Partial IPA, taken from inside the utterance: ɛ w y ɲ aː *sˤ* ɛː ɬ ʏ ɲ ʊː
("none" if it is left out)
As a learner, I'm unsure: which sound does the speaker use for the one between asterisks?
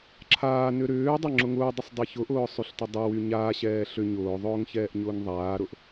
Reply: ɕ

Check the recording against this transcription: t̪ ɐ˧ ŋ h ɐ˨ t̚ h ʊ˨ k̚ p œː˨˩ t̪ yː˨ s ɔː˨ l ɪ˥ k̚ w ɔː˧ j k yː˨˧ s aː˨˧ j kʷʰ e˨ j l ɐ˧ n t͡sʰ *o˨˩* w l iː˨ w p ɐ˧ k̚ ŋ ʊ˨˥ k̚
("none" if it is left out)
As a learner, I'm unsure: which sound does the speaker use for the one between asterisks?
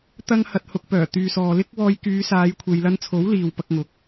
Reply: o˨˥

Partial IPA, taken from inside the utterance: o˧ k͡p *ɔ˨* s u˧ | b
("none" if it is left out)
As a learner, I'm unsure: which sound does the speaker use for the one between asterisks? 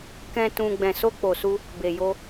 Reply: o˨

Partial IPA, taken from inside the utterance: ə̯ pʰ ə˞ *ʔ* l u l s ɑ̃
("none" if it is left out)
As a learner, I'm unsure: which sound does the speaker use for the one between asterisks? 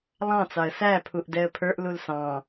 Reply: ʔ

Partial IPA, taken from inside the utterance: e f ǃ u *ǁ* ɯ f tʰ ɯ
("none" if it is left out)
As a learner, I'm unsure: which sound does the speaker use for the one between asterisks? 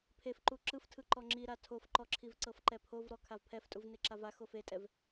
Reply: ǁ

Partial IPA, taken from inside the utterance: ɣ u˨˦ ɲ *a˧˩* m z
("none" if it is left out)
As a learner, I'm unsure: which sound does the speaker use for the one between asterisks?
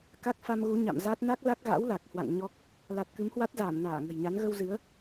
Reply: a̰˧˨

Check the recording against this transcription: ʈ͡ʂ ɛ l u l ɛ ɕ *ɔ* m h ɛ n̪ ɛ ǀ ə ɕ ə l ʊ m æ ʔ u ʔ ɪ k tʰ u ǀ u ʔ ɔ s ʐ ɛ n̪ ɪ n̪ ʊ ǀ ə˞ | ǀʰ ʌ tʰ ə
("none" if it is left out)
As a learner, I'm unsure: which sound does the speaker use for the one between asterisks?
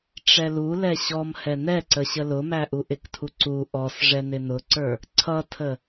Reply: ɔ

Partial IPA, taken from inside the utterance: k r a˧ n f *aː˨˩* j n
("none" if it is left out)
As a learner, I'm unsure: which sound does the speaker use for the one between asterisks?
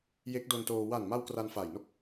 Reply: aː˨˩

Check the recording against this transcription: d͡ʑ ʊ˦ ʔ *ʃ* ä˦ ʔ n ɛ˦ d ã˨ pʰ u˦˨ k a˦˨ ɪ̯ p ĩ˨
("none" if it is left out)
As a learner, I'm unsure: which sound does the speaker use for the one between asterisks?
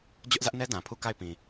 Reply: z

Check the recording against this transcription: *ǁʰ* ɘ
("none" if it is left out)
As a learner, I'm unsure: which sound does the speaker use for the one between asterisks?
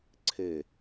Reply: ǀʰ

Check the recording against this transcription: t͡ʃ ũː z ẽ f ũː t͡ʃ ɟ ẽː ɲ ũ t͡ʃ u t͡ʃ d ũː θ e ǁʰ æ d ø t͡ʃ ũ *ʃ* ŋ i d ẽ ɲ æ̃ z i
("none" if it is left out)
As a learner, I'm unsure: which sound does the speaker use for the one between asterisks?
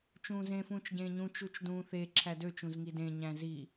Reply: z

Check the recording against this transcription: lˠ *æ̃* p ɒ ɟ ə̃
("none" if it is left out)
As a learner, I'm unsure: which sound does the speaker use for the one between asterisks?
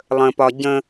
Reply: ə̃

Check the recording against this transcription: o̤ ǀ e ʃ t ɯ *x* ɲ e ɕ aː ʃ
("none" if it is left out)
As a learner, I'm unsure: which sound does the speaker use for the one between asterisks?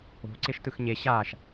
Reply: x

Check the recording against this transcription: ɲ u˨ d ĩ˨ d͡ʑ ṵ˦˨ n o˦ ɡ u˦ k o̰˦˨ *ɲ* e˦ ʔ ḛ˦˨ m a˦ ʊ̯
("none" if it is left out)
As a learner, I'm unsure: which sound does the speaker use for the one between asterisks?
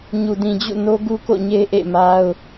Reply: ɲ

